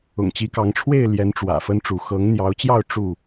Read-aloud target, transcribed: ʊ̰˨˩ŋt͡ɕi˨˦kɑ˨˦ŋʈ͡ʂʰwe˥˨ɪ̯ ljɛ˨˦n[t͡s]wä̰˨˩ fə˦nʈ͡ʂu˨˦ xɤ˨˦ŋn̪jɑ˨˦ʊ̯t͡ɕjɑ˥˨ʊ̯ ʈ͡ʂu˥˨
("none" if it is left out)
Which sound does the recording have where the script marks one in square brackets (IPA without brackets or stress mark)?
ʈ͡ʂ